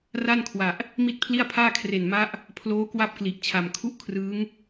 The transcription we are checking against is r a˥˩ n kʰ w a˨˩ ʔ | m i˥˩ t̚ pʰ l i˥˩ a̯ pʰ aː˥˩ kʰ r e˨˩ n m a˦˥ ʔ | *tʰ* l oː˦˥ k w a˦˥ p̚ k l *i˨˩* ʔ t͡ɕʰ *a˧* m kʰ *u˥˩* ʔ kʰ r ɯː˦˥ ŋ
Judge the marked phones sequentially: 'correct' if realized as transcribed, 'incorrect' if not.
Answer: incorrect: pʰ, correct, incorrect: a˨˩, correct

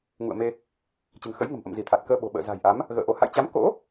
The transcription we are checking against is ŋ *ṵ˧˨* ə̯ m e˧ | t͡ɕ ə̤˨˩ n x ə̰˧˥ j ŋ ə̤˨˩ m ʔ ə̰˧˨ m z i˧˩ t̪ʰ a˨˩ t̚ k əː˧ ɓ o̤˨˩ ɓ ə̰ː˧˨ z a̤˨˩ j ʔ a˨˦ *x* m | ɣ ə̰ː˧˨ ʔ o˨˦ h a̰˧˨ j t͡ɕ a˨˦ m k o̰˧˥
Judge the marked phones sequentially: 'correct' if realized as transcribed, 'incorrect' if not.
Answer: correct, incorrect: none

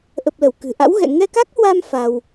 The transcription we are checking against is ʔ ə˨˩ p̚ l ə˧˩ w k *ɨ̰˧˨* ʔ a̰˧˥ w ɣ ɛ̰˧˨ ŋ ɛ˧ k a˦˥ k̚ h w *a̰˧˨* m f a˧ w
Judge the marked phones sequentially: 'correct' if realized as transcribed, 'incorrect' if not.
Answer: incorrect: ɨ̤˨˩, incorrect: a˧

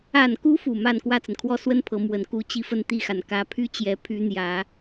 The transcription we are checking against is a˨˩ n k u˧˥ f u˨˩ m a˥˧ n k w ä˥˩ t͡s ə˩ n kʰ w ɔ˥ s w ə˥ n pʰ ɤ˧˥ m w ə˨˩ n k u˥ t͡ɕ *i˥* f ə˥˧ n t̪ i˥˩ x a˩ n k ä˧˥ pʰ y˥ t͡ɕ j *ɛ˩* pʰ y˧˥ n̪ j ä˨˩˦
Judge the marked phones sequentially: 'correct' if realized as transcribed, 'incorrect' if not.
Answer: correct, incorrect: ɛ˧˥

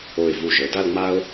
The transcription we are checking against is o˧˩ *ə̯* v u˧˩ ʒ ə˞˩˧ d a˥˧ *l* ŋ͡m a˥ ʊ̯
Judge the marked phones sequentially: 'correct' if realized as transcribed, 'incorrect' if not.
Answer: incorrect: ɪ̯, correct

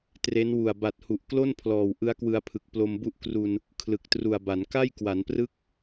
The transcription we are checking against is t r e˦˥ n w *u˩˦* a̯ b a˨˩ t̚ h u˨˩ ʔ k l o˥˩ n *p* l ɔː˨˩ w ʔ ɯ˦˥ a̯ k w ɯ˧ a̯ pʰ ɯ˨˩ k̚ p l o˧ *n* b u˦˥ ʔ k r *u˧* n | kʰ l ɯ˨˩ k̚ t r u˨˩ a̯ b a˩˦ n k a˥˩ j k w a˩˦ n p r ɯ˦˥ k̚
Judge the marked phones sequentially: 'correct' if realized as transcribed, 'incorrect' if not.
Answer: incorrect: u˨˩, incorrect: pʰ, incorrect: m, correct

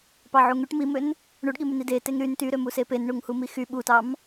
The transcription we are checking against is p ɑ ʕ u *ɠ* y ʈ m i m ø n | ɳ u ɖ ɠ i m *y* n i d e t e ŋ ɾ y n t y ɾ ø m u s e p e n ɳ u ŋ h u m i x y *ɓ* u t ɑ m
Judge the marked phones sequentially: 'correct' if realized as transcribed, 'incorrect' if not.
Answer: incorrect: ŋ, correct, correct

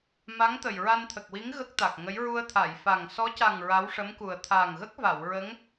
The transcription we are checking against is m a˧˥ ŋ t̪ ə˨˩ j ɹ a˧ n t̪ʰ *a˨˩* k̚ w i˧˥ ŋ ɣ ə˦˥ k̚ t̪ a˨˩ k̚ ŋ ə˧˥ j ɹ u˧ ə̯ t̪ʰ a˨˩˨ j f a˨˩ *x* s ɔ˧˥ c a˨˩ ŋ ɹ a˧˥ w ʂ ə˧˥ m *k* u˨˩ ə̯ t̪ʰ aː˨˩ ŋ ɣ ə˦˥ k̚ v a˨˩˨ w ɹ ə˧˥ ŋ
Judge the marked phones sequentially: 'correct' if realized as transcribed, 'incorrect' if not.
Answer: incorrect: ə˨˩, incorrect: ŋ, correct

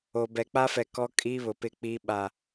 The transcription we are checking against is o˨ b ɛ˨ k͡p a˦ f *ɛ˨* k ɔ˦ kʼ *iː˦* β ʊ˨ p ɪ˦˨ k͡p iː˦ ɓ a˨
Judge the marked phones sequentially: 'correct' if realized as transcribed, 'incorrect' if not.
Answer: correct, correct

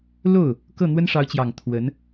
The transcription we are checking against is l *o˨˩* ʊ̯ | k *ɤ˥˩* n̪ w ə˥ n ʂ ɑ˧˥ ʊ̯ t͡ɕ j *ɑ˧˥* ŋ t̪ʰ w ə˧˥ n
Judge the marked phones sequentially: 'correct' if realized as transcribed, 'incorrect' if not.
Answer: incorrect: o˥˩, correct, incorrect: ɑ˨˩

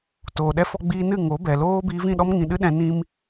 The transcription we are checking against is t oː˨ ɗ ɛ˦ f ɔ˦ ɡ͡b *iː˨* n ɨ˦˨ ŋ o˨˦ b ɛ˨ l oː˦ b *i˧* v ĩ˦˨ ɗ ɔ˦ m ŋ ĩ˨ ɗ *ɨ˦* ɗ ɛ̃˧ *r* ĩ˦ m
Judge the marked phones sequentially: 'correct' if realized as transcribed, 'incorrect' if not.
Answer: incorrect: iː˦, correct, correct, incorrect: n

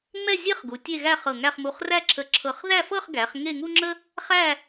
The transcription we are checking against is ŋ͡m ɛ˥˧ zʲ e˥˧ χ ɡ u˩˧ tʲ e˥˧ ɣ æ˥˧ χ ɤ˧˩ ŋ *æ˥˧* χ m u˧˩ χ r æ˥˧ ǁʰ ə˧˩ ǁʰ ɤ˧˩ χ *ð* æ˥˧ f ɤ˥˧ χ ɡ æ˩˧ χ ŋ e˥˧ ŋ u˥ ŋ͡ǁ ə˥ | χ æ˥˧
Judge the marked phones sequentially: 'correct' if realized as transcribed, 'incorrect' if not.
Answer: correct, correct

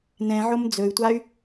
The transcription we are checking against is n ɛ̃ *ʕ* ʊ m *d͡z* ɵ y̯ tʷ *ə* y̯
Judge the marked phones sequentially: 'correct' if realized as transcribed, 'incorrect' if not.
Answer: correct, correct, incorrect: a

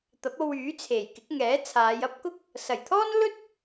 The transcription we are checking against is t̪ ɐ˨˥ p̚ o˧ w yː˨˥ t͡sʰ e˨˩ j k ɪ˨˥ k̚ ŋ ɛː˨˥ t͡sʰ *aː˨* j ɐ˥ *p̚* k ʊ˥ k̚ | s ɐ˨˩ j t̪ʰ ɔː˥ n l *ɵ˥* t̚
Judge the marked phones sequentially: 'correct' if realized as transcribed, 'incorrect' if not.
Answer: incorrect: aː˨˧, correct, correct

